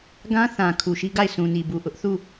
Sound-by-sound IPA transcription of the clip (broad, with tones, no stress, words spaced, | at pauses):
ɡã˦θã˨ kʰu˨ʃi˦ɡa˦˨ɪ̯ sũ˨ni˨bu˨ ʔʊ˦ʔθu˦˨